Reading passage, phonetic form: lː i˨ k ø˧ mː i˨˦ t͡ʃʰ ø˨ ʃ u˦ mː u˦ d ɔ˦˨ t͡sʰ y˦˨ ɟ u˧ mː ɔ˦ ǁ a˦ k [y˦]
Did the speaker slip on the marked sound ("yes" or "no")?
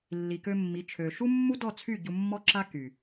yes